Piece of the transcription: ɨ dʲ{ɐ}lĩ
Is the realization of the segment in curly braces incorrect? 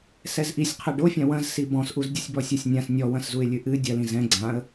no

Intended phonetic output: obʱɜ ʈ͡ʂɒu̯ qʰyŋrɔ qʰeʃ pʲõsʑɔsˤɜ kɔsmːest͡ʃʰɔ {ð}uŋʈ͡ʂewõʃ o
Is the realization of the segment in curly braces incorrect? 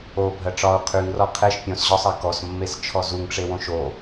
yes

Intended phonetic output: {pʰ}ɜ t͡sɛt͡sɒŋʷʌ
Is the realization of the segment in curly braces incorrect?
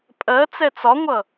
yes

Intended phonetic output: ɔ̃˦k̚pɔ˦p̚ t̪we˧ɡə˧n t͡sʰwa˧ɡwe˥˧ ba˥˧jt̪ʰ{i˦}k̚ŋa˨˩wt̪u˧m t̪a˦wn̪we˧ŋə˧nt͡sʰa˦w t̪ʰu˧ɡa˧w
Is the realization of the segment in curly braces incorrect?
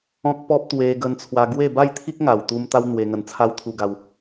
no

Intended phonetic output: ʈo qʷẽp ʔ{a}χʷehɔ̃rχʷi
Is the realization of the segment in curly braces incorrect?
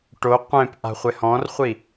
yes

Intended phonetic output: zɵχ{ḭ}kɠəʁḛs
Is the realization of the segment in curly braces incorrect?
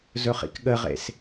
no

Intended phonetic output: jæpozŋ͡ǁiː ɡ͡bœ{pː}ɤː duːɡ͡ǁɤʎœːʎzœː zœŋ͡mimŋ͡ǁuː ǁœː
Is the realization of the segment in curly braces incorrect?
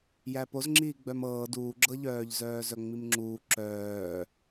yes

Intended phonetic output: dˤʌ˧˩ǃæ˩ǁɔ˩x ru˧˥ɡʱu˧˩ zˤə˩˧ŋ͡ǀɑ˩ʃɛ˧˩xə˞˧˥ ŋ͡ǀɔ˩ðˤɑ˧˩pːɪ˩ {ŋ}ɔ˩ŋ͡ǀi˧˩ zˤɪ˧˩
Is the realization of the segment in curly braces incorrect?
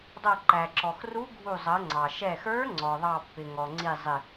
no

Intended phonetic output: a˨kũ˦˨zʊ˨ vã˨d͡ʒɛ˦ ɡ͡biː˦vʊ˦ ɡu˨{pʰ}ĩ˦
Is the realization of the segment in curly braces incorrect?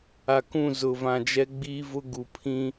no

